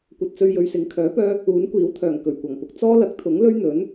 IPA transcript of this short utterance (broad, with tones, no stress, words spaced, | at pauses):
kʷɐ˨t̚t͡sɵ˧ɥjɵ˨ɥsɪ˨˧ŋ kʰœː˨˥pœː˧ | uː˨˥nkʷiː˨˥wt̪ʰœː˨˩ŋ kɵ˨˩ɥkʷɐ˨˩ŋpʊ˧k̚ t͡sɔː˥lɐ˨˥k̚t̪ʰʊ˨˥ŋ lɵ˥ɥn̪ɵ˨˥n